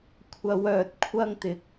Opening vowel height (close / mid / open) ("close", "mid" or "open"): open